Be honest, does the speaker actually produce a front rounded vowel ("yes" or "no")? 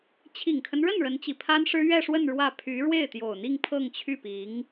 yes